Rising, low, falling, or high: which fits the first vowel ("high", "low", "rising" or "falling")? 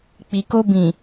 low